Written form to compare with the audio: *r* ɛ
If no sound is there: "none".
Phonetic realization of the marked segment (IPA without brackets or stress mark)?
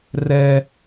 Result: r